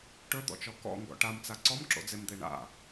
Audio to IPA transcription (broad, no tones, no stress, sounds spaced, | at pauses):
ʈ ɵ d̪ ɔ̰ t͡ʃ ɔ k ɔ̰ ŋ ɡ ɔ̰ ʈ a m t͡s a ǀ ɔ m ǁ o̰ d͡z e m d̪ e ɳ a̰